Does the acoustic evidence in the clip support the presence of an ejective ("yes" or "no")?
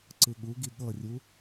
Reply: no